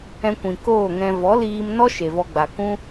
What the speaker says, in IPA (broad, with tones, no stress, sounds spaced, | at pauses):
ɛ̃˧ kʷ ĩ˨ k oː˦˨ ŋ ɛ̃˧ v ɔ˨˦ l iː˧ m n ɔ˦ ʃ e˨ v ɔ˧ ɡ͡b a˨ k ũ˦